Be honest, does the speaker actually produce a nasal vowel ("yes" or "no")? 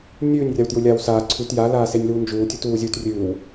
no